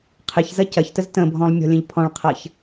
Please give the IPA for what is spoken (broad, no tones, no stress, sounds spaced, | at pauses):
qʰ ɪ ç z ɐ c ɐ ç t ə z t ə̃ bʱ ɔ̃ lˠ mʲ ɔ̤ lʲ ə̃ ʎ pʰ ɔ̃ ɭ qʰ ɐ ç